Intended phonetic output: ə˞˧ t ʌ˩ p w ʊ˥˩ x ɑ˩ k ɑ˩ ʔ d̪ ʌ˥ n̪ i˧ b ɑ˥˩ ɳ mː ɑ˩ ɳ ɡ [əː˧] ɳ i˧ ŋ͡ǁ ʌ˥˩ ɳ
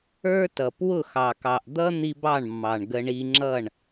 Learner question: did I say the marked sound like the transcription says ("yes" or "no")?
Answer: no